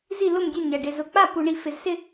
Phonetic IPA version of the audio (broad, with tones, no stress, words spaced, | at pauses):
zi˥˨lʊ˥˨mdʲe˥˨ nʲa˨ɖɪ˨ zʊ˨k͡pa˥˨pu˨ɳi˨ fɪ˨zsɪ˥˨